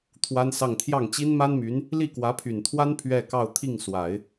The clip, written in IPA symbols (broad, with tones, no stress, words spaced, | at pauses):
t̪ʰwa˥nsɑ˥˧ŋ t̪ʰjɑ˥˩ŋt͡ɕi˥n ma˥nmy˧˥n | li˥˩kwä˧˥pʰy˨˩nt̪ʰwa˥n pʰɥɛ˥˧ kɑ˥˧ʊ̯ t̪ʰi˥˩ŋswa˨˩˦ɪ̯